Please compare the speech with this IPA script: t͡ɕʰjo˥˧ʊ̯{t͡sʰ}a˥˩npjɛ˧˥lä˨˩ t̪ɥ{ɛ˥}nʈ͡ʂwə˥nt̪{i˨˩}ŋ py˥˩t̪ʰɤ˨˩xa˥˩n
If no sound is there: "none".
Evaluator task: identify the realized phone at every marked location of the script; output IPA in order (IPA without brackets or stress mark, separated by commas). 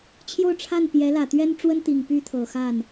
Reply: ʈ͡ʂʰ, ɛ˥, i˨˩